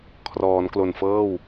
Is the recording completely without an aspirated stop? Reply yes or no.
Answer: no